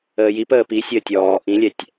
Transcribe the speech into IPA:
əː j i p əː p i sʲ əː tʲ ɔː ʔ ĩ lʲ ɛ tʲ

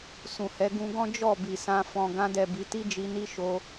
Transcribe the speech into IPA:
s ũ˨ h ɛ˨˦ ɡ ũ˧ ɡ ɔ̃˦ d͡ʒ ɔ˦˨ b i˨ s ã˧ f ɔ̃˨ ɡ ã˧ d ɛ˨ b i˨˦ t i˦ d͡ʒ i˧ n i˦ ʃ o˧

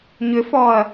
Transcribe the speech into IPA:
ɲ ʏ f ɔ ɐ̯

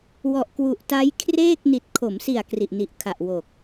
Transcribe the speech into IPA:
w ɔ˨˩ ʔ k w u˨˩ ʔ t a˦˥ j kʰ r eː˥˩ k̚ n i˨˩ t̚ kʰ o˩˦ m s i˨˩ a̯ k r i˨˩ ʔ n i˨˩ ʔ kʰ a˨˩ ʔ w o˨˩ k̚

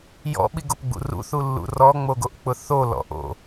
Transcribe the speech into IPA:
j ɔ̰ ɓ i ɡ o p ɡ͡b ṵ r ṵ θ u lː ṵ r ɔ ŋ͡m o ɡ o ʔ k͡p ʊ θ o l ɔ̰ ʔ o̰

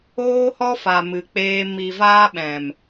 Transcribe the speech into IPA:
oː˦ h ɔ˦ f a˨ m ɨ˨ k͡p eː˧ m i˨ v aː˧ ɓ ɛ̃˨ m

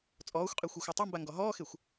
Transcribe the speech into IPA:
t͡sʼ ɔː xʷ qʼ e xʷ ɛ xʷ a tˤ ɛ m b a ŋ ɡ ɔ ɦ ɔː x e xʷ

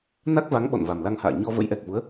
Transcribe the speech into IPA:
n a˦˥ k̚ v a˨˦ ŋ ɓ ɔ̰˧˨ n v a˨˩ m l a˧ ŋ h a̰ː˧˨ ɲ ɔ˧ v ə̰˧˥ j ʔ ɛ˨˩ k̚ v u˨˦ ə̯

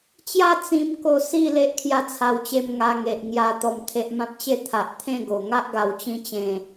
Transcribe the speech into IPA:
t͡ɕ j a˥˧ t͡s ĩ˦ m k o˥˧ s i˥˧ l e˦ ʔ kʰ j a˥˧ t͡sʰ a˧ w t͡ɕ e˧ m ŋ a˧ ŋ e˨ ʔ ŋ j a˧ t̪ ɔ˨˩ m t̪ʰ e˨ ʔ m ã˦ p̚ t͡ɕ e˥˧ t̪ʰ a˨ ʔ t̪ʰ ẽ˥˧ ɡ o˨˩ ŋ a˦ ʔ ɡ a˨˩ w t͡ɕ ĩ˧ t͡ɕ ẽ˨˩

